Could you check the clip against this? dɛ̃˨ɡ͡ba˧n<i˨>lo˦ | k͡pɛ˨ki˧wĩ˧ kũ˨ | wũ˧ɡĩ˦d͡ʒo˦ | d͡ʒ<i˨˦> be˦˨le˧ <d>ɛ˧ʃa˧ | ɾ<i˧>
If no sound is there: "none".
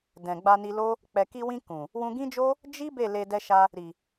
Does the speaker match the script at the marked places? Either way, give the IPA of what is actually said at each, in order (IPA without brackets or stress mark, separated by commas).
i˧, i˦, d, i˨